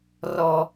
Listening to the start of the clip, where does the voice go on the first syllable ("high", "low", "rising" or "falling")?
high